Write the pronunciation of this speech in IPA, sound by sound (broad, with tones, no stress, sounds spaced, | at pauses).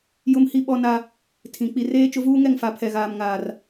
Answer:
j ʊ˦ m h i˦ ɓ ɔ˦ n a˦ | tʰ ĩ˨ k͡p i˨ r eː˦ t͡ʃ ʊ˦ v uː˦ ŋ ɛ˦˨ ŋ f a˨ pʰ ɛ˨ ɣ aː˨ m ŋ aː˨ r